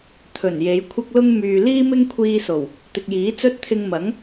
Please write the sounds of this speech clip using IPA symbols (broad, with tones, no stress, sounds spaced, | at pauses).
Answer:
t̪ʰ ɵ˨˩ n j e˨˧ j kʷʰ ɐ˥ k̚ l ʊ˥ ŋ m yː˨ l iː˥ m ɪ˥ ŋ kʷʰ iː˧ s o˨˩ w | t̪ ɪ˨ k̚ j iː˨˥ t͡s ɵ˥ t̚ t̪ʰ ɪ˧ ŋ m ɐ˨˥ ŋ